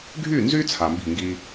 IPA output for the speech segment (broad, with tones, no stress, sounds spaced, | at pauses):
ɡʱ y˥˩ n z y˦ t͡sʰ a˨ m b i̤˥˩ ŋ ɡ i˦